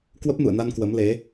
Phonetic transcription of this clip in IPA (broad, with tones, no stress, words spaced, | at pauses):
kwə˦˥p̚nṵ˧˨ə̯na˧n kwə˨˦mle˨˦